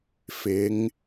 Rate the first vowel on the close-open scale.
close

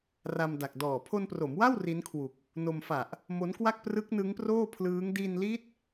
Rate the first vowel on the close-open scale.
open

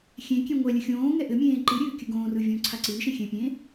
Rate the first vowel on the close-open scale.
mid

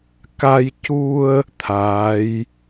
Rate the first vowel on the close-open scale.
open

